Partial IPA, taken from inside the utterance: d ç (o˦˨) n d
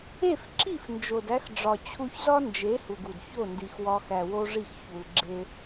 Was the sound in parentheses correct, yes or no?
yes